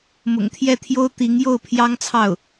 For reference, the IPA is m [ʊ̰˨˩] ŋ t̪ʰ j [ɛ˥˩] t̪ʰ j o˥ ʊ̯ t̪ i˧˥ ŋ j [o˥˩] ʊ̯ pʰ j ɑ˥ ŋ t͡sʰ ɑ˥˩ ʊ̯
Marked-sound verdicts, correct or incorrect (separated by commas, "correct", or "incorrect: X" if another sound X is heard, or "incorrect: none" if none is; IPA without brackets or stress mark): correct, correct, correct